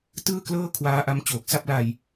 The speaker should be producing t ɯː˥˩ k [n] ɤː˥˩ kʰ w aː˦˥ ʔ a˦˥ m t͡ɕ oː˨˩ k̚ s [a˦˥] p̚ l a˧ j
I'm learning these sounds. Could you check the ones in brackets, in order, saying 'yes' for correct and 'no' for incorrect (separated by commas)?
no, no